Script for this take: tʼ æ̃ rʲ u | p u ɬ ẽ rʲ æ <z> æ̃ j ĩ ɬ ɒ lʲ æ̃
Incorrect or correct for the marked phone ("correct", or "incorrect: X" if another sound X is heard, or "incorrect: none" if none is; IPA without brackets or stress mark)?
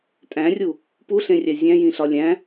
incorrect: zʲ